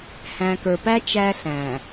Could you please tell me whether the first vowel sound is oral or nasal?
nasal